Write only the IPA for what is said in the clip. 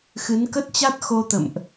x ɨ˨˦ n k ə˦˥ t̚ t͡ɕ a˦˥ t̚ x o˧ t̪ ə̰˧˨ m ʔ

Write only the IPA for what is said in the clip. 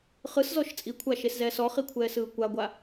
χ ɯ s z ɔ ʃ t͡sʼ i kʷʰ a ʃ e s z ɛː s ɔ χ i kʷʰ ɛː s ɯː kʷ a ɡʷ a

